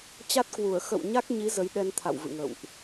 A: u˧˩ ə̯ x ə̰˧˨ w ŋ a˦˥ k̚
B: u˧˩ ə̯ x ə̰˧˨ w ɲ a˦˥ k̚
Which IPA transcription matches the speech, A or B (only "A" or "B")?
B